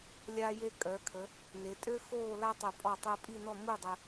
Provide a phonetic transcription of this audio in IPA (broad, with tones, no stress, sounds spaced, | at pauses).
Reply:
lʲ aː˧ j e˧ kʼ œ˩˧ kʰ ə˩˧ | n e˩˧ tʼ ø˥ x oː˥˧ l a˥ tˤ œ˧˩ pʼ ɔ˧˩ tˤ əː˧ pʼ i˥˧ n ɔ˥˧ m u˥˧ dˤ ə˧